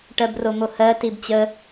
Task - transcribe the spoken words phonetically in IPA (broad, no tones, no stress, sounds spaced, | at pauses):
ʈ ɜ b r o m o h ɜ t i b t͡ɕ ə